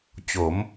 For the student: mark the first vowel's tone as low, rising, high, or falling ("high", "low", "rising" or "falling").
rising